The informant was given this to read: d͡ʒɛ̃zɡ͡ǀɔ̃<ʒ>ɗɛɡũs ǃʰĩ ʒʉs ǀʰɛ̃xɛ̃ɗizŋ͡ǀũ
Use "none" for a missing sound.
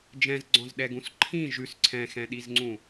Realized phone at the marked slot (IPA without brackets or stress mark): z